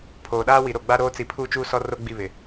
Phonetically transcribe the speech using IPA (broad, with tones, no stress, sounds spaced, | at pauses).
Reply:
pʰ oː˨ ɗ aː˦ w i˨ ɾ o˨ ɡ͡b a˦ ɾ oː˦ t͡s i˨ pʰ uː˦ t͡ʃ uː˦ s ɔ˦ r o˦ ɡ͡b i˦˨ β ɪ˨